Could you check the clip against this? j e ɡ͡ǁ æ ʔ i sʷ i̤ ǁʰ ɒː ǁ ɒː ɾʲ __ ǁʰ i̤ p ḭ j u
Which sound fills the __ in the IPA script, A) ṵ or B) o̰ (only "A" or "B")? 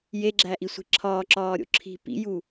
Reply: B